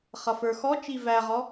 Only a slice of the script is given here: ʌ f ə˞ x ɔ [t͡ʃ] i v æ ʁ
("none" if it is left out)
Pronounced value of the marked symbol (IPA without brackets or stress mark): t͡ʃ